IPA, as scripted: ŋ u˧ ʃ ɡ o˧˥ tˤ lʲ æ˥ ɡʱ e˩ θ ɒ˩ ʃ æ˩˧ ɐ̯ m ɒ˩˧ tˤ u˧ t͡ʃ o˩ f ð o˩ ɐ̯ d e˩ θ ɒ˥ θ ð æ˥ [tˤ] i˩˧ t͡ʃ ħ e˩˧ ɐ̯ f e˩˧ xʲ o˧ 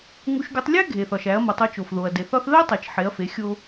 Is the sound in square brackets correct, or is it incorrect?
correct